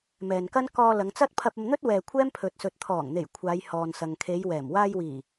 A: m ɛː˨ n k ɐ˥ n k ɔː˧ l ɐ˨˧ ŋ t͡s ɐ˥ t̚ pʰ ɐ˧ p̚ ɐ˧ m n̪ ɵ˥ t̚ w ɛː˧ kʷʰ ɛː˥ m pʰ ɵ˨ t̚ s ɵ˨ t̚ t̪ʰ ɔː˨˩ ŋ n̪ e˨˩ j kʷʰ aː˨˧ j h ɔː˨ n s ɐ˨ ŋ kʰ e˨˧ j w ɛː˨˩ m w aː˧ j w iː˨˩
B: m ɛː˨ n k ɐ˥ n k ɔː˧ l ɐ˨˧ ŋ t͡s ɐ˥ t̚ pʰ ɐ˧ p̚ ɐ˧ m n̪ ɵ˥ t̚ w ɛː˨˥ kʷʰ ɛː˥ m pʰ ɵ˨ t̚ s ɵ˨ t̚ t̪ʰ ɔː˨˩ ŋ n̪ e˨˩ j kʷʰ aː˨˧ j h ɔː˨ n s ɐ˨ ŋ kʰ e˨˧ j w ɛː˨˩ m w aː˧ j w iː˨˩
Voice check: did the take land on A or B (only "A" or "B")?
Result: A